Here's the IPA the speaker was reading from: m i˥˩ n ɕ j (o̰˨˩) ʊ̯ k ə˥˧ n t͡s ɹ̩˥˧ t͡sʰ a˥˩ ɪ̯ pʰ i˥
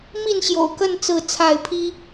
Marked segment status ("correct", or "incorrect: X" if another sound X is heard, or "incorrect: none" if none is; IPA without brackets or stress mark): correct